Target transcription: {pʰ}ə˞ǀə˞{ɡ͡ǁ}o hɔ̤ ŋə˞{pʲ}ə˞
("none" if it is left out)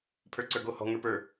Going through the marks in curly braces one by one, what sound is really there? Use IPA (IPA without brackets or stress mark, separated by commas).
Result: pʰ, ɡ, p